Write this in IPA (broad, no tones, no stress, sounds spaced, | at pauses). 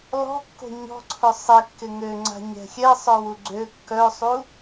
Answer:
l ɔ̤ kː o̤ ɲ ɔ̤ ǀʰ ʊ sˤ e kː ɪ ŋ ø ŋ͡ǀ a̤ ɲ ɛ̤ xʲ ɛ sˤ œ w u ɡ͡ǀ ø kː œ sˤ u